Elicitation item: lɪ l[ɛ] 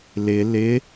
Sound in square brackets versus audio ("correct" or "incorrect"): incorrect